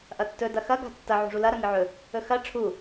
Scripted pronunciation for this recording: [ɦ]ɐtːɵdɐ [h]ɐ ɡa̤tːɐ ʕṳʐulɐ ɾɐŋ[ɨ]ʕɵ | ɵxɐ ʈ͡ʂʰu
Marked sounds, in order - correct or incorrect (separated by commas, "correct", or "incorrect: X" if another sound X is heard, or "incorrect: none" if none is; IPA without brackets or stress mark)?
incorrect: ʔ, incorrect: x, correct